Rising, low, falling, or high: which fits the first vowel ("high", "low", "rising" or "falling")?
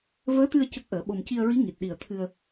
rising